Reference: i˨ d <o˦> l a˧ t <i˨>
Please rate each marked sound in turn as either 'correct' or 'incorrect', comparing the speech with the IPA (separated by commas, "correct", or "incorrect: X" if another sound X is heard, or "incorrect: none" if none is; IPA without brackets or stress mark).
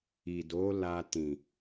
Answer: incorrect: o˨˦, incorrect: ĩ˨